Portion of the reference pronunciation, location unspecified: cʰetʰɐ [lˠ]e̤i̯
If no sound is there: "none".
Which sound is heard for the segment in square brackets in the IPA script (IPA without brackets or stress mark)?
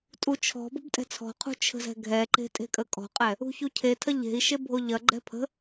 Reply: ʎ